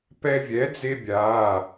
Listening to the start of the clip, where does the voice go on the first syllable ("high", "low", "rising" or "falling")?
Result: high